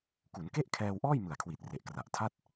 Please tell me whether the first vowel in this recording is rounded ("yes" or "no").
yes